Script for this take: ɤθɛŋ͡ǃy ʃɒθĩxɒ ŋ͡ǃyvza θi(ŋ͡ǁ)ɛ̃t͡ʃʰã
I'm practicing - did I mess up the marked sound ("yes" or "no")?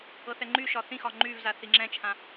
no